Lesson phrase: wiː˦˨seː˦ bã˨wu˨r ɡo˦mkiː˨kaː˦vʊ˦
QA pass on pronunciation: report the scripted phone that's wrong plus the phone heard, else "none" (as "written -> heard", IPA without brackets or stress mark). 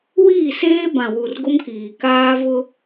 none